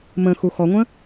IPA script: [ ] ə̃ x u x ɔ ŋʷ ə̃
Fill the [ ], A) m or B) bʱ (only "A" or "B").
A